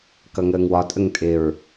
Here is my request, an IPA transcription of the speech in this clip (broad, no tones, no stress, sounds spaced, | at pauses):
k ʌ ŋ əː ŋ w ɒ tʼ ə ŋ tʼ ɪ ɹ